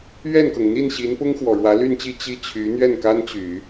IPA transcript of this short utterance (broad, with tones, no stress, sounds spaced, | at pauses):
ɥ ɛ˥˩ n k ɤ˩ ŋ n̪ i˥˩ n ɕ i˧˥ n p ʊ˥ ŋ x w ɔ˨˩ ɻ w ä˧˥ l y˥˧ n t͡ɕ i˥˧ t͡ɕ i˥˩ t͡ɕʰ y˧˥ n̪ ɥ ɛ˥˩ n k a˥ n t͡ɕ y˨˩˦